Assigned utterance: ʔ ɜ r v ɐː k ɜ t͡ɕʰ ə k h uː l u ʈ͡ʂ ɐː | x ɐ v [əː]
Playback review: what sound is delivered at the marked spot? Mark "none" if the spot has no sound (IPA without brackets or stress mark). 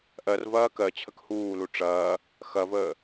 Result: əː